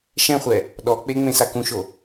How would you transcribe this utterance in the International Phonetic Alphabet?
ʃ ɛ̃ χʷ ɛ | ɗ ɔ k͡p e ŋ͡m ẽ s a k ũ ʃ o

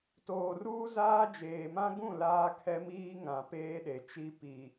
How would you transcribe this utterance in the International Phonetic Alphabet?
t oː˨ r uː˦ z aː˦ d͡ʒ eː˨ m ã˦ ɡ ũ˦˨ l aː˦ kʰ ɛ˦ m iː˦ ŋ ã˨ p eː˦ ɗ e˨ t͡ʃ i˦ p i˨

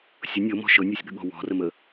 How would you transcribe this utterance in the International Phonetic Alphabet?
sʲ ʊ nʲ ɤ m ɔ̤ ʃ ɤ nʲ ɔ sʲ ɠ ə̤ ɠ ɔ̤ w ɔ̤ r ə m ə

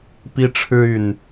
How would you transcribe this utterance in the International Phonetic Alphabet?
p i˦ ʈ͡ʂʰ ɻ̩˦ y˨˩ n

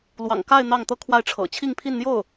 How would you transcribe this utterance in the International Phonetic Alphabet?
l w ɑ̰˨˩ ŋ k a˥˧ ɪ̯ n̪ ɑ˥˩ ŋ t̪ ɤ˥ kʰ w a˥˩ ɪ̯ ʈ͡ʂʰ ɤ̰˨˩ t͡ɕʰ i˥˧ ŋ pʰ i˥˧ n n̪ j o˥˩ ʊ̯

